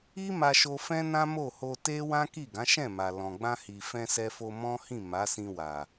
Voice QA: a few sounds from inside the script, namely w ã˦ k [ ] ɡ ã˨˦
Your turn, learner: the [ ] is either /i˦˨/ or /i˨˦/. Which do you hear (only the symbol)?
i˦˨